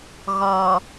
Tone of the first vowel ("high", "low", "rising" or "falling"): low